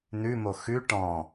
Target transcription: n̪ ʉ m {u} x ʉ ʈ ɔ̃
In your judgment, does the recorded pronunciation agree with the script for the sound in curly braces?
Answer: no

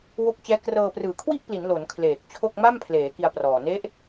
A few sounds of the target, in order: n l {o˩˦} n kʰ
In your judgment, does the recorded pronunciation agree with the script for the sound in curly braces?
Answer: yes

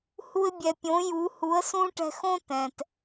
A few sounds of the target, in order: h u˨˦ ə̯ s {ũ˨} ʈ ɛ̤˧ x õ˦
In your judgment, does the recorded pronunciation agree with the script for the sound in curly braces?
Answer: no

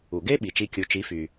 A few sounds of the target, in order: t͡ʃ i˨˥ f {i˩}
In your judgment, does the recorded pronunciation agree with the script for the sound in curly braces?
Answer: no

